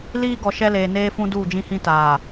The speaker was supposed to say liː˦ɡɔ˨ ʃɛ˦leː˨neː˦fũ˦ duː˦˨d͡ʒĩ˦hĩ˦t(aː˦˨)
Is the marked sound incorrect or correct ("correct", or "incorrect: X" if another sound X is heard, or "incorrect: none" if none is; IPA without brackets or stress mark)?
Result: incorrect: aː˨